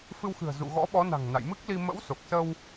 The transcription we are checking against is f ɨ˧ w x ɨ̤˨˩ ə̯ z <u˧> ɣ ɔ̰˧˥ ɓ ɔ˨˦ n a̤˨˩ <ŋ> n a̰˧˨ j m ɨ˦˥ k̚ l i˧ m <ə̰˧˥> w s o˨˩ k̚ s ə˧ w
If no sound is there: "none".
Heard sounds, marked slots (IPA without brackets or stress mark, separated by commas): ṵ˧˨, ŋ, ə̰˧˥